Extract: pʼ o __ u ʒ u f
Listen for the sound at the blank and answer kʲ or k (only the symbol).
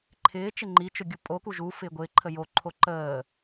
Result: k